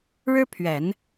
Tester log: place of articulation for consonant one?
retroflex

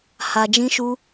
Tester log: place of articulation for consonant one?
glottal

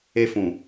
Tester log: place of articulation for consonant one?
labial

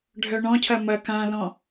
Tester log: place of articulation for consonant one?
retroflex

